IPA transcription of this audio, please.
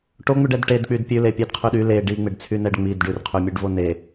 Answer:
ʈoŋ͡mʉɖ ɛdʈed k͡pydpʲʉ lepʲɛdqʰyɗy le ɖiŋ͡meɖt͡sʰynɛɖ ŋ͡mid ɖʉrqʰymʲʉɖvo ne

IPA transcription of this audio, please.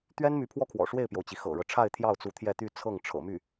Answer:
t̪ɥɛ˥nmy˧˥ pʰwɔ˥kʰwɔ̰˨˩ ʂwe˥˩ɪ̯pjo˩ʊ̯t͡ɕi˩ xɤ̰˨˩ɻɤ˦ʈ͡ʂʰa˥˧ɪ̯ t̪ʰjɑ˥˩ʊ̯t͡su˧˥ t̪ʰjɛ˥˧t̪y˥˧ t͡sʰɤ˥˩ŋ ʈ͡ʂʰɤ̰˨˩my˥˩

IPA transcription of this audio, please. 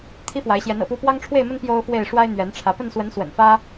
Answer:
t̪ʰi˦fwa˨˦ɪ̯ɕjɛ˨˦n ɤ̰˨˩pu˥˨ pwɑ˦ŋʈ͡ʂʰwe˥˨ɪ̯mə˦n pjo˦ʊ̯fwe˥˨ɪ̯ ʂwa˦ɪ̯n̪ɥɛ˨˦nʈ͡ʂʰä˨˦ pə˥˨nswə˨˦n swə̰˨˩nfä˦

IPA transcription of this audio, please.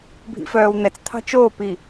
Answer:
bʱḭfœːwn̪ɛt͡st̪ʰɑ̤ t͡ʃoːpi

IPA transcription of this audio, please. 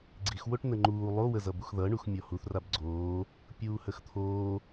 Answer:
ɡ͡ǀixwoʈ nəŋ͡ǃuː lˠowəzʌbux ðʌɳux mʲɔhuθ rabɡ͡ǀoː | pʲuːhəxt̪ʰoː

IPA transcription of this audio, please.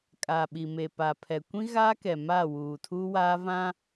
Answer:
kʼa˨ɓi˨me˨ pa˨pʰɛ˨ kʷĩ˦ɣaː˦kɛ˨ maː˦˨wuː˨tʰuː˦waː˦ vã˦

